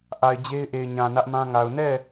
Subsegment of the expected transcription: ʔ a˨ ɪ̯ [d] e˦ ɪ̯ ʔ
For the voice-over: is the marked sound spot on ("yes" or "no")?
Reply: no